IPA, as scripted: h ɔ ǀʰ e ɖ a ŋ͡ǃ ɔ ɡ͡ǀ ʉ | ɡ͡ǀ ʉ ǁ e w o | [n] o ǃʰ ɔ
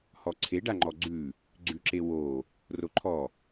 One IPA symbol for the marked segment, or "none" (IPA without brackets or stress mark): r